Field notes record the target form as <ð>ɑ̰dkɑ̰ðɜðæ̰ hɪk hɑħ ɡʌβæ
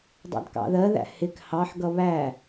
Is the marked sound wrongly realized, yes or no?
yes